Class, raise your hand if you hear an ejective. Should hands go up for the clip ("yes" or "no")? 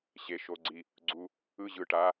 no